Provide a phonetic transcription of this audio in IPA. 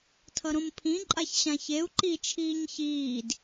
tʰʌɾõmpʰĩ ǃʼaçɕãçeu̯ ǃi t͡ʃʰiːɲçiːd

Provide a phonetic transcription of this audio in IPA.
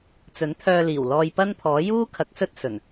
t͡sɵ˨˥nt̪ʰœː˧liː˨˩wlɔː˧j pɐ˥npʰɔː˨˥ juː˥ kʰɐ˨˥k̚sɵ˥t̚ sɵ˨˩n

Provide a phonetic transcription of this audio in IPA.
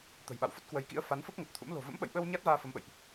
t̪ə̤˨˩jɓa̰˧˨w fə˦˥t̚kwə˨˦jkḭ˧˥ə̯ fa˨˦nfə˦˥p̚ŋə˨˩t̚t̪ʰṵ˧˥m lo̤˨˩və̰˧˥mɓə̰˧˨jɓə˧w ɲa˦˥t̚vaː˧ fə˨˦mɓə̰˧˨jʔ

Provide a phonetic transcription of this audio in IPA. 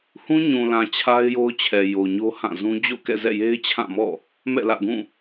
hũ˦ɲũ˨lã˨ t͡ɕʰa˦ɪ̯jo˦ʊ̯t͡ɕʰɛ˨ jo˨ɲo˦hã˦˨zũ˦ d͡ʑo̰˦˨kɛ̰˦˨zɛ̰˦˨je˦ɪ̯ t͡ɕʰã˦˨mɔ̰˦˨ | mɛ̰˦˨lä̰˦˨ɡũ˦˨

